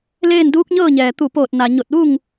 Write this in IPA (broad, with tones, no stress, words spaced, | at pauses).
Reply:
leː˥˨nduː˧˥k̚ɲɤː˥˨ɲɛː˩ t̪u˧˩poː˧˩t̚ na˩ ɲo˧˩t̚ʋu˥˨ŋ